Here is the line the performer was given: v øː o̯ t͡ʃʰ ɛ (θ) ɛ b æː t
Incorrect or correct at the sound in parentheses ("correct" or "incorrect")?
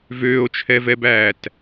incorrect